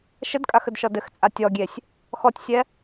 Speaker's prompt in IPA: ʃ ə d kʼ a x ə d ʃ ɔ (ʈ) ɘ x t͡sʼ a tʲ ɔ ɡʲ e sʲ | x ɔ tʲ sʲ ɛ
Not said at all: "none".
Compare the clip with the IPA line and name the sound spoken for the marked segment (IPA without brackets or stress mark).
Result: d